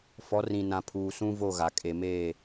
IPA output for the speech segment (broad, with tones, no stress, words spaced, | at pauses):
fɔ˨˦rĩ˨ nã˨pʰuː˨ sũ˦vo˦˨ɣa˨ kʼe˨meː˦˨